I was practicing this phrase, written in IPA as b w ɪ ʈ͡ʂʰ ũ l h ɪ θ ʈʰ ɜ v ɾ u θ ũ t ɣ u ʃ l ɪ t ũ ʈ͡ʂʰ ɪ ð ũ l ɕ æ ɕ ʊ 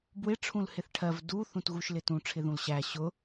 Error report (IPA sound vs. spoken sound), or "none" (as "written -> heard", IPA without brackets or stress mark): ɾ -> d